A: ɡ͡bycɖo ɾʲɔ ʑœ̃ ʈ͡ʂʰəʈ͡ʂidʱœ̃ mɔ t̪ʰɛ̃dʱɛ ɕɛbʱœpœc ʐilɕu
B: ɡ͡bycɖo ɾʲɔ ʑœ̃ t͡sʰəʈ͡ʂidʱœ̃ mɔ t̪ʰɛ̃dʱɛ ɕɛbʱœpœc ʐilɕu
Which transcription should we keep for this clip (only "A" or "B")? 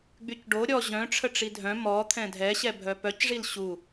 A